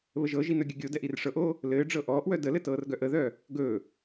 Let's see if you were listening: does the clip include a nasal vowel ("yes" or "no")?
no